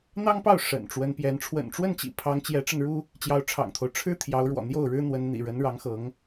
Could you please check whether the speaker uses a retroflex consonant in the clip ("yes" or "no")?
yes